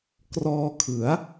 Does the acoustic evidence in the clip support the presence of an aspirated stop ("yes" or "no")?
yes